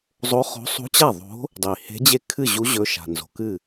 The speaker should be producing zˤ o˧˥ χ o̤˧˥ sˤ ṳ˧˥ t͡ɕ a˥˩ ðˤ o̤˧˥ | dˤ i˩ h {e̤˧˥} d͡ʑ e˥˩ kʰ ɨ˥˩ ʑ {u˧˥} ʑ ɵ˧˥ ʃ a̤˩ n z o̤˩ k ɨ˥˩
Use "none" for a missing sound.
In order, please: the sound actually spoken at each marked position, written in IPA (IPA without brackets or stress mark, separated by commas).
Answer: e̤˧˥, u˧˥